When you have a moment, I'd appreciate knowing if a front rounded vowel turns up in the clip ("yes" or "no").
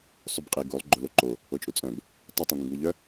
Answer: yes